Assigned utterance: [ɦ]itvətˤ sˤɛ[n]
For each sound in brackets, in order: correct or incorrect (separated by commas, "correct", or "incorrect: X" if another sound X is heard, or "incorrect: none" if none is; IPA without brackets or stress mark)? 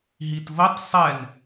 correct, correct